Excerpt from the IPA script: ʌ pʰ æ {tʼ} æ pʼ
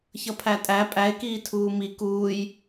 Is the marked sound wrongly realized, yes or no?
no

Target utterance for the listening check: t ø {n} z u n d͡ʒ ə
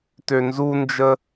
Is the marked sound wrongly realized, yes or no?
no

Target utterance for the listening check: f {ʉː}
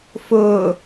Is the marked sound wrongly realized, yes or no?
yes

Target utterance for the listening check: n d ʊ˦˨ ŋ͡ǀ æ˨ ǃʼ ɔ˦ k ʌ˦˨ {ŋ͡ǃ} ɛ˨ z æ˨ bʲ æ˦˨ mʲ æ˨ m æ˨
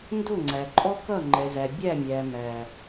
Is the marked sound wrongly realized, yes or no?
no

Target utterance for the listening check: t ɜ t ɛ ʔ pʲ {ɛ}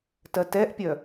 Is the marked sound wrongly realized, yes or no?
yes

